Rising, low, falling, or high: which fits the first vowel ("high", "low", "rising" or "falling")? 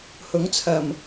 rising